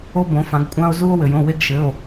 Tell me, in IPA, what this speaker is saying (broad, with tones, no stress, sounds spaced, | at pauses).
o˦ b õ˩˧ f ã˩˧ ɡ kʷʼ ã˦ o̯ z u˦ o̯ w ɘ˩ j õ˩˧˩ w e˦ ɡ ʃ ɘ˩˧˩ o̯